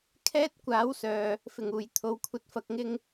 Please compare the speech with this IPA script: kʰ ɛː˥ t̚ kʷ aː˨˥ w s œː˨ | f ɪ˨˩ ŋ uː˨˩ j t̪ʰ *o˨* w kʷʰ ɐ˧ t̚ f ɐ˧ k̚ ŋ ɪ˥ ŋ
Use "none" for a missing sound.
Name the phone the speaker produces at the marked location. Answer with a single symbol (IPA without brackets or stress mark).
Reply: o˨